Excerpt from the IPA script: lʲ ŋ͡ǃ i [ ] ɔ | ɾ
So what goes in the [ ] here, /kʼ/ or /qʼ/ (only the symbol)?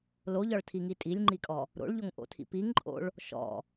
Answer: kʼ